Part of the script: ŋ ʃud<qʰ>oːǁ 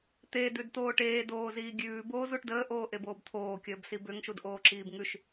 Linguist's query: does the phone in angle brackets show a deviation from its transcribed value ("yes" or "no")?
yes